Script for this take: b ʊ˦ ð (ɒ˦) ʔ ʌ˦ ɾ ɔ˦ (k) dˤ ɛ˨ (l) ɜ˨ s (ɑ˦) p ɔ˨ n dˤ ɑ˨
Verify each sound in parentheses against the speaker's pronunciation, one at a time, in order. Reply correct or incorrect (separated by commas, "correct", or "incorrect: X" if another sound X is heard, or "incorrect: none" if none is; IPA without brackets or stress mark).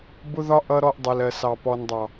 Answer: correct, incorrect: ʔ, correct, incorrect: ɑ˨